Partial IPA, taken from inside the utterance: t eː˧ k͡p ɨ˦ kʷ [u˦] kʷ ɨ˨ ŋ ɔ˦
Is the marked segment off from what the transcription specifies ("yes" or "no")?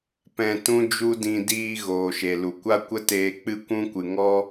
yes